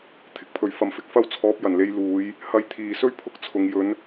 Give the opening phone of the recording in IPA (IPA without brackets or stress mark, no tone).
t̪ʰ